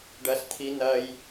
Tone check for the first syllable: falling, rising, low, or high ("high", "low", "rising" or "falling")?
high